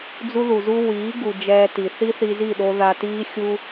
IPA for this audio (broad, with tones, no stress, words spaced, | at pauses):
d͡zu˦ðu˨zu˦ wiː˨˦ɡu˨ d͡ʒɛː˧ti˨ θi˦θi˧zi˦˨ɗo˧ ða˧ tiː˦ xʲu˦